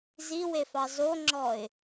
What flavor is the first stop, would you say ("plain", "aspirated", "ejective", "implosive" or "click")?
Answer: click